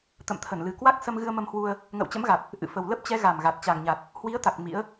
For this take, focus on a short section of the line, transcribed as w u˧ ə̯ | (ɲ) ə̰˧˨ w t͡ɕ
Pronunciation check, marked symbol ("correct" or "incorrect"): incorrect